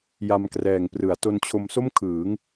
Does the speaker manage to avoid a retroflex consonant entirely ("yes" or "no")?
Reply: yes